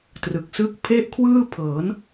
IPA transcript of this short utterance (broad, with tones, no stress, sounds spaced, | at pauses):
t r ɯ˨˩ k̚ s ɯ˥˩ k̚ pʰ e˥˩ ʔ kʰ w ɯː˥˩ pʰ ɤː˩˦ n